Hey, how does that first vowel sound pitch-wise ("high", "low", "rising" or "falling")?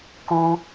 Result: high